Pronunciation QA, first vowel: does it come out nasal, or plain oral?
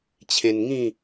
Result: nasal